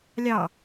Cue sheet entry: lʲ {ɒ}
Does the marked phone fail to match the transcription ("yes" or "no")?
yes